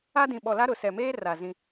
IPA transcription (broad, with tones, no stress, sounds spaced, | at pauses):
a˦ d ĩ˨ ɓ ɔ˨ l a˦ ɾ ʊ˨ s ɛ˨ m eː˦ r a˨ z ĩ˦